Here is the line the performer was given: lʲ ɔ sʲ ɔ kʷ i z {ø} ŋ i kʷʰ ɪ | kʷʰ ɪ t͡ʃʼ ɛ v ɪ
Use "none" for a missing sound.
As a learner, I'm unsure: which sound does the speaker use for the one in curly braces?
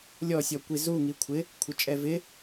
u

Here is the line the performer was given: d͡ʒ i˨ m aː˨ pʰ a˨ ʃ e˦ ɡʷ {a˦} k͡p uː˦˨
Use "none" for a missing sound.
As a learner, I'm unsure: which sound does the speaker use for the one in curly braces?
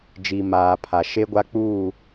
a˦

